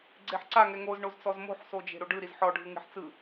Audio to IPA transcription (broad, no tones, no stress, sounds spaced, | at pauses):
ɡ͡ǀ e ħ ǀ a ŋ ɛ ŋ o z ɳ o z t͡s ɔ z m o̤ ħ s o d͡ʒ e̤ ɾ o ɖ ɯ ɾ i z ħ ɔ ɖʱ ɯ ŋ e̤ ħ t͡s ɯ